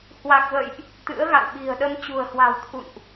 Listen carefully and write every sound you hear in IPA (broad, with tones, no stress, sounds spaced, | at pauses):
h w a˨˩ k̚ v ə̰ː˧˨ j ʔ | t̪ ɨ̰˧˥ ə̯ ɣ a̰˧˨ w ɓ i̤˨˩ ə̯ ɗ ə˧ m t͡ɕ ṳ˨˩ ə̯ h w a̤˨˩ w t̪ʰ ṵ˧˨ n ʔ